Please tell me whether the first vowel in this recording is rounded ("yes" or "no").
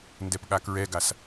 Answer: no